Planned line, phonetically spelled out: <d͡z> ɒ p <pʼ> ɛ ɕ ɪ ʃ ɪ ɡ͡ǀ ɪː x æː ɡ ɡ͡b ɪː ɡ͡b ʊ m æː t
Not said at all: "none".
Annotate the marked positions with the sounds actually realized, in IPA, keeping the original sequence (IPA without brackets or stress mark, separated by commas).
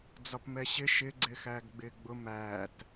d͡z, m